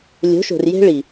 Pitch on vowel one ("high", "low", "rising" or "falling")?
rising